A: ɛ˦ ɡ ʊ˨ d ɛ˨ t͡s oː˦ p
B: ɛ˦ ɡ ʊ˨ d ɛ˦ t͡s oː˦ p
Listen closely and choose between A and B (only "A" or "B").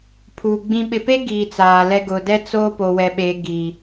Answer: B